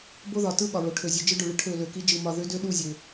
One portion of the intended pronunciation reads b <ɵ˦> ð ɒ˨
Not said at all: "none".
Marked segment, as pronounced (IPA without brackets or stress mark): o˦